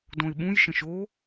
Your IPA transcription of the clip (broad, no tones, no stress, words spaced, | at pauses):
dõɪ̯ɓũj ʃə̃ʃo